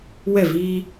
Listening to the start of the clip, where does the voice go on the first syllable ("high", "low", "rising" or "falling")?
falling